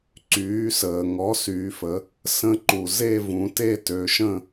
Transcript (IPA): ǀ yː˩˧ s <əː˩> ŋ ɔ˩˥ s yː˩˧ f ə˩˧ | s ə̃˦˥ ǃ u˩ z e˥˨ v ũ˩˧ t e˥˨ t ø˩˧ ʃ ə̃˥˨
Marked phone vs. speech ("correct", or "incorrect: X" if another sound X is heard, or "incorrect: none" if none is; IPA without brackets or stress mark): correct